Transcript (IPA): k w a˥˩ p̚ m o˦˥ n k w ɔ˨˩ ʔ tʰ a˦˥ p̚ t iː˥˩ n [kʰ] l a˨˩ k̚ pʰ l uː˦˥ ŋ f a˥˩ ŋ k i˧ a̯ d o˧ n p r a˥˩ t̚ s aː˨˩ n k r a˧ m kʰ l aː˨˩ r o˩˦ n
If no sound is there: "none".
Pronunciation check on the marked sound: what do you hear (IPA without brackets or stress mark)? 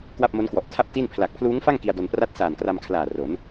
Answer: pʰ